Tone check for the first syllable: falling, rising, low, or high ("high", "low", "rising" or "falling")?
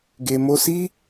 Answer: low